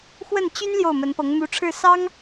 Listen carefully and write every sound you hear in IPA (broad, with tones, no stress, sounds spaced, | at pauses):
x w ə˥˩ n t͡ɕ y˥ n l j o˥˩ ʊ̯ m ə˧˥ n p ɤ˧˥ ŋ n̪ u˧˥ ʈ͡ʂʰ ɻ̩˥˩ s ɑ˥ ŋ